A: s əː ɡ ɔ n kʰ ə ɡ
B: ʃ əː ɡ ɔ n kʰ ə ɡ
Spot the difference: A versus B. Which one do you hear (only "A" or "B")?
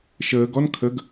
B